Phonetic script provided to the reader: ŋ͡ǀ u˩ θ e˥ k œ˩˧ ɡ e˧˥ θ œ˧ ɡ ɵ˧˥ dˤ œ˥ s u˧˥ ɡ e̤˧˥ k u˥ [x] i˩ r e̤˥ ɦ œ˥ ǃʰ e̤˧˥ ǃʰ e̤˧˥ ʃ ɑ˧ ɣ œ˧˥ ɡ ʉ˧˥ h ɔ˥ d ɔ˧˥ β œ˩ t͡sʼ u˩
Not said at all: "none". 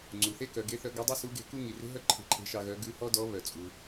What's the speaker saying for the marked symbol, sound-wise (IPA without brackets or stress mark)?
ŋ